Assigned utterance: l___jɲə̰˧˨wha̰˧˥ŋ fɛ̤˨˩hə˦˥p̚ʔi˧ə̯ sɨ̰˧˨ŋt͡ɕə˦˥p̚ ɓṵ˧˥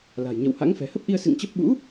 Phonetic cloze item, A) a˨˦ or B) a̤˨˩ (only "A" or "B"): B